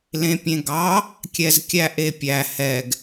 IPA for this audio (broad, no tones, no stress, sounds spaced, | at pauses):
l ẽ pʲ ẽ ɡ ɑ | kʲ ɛ z kʲ æ ʔ e pʲ æ h ɛ ɡ